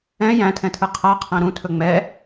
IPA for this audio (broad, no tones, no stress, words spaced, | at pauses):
ɛ̃ jæ̃tʰɛ̃tʰɯ qʰaqʰæ̃ ɾũtʰɵ ŋ͡mɛ